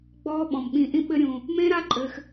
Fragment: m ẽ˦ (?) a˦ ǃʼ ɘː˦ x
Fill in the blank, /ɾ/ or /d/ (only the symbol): ɾ